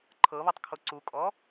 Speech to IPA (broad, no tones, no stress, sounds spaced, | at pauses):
ǃʰ ɤ β ɔ tˤ kʰ o ǀ u kʼ ɔ